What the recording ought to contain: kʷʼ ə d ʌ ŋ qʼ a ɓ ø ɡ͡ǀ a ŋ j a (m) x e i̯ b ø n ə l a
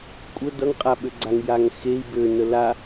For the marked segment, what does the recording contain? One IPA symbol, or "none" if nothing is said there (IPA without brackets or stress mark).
ŋ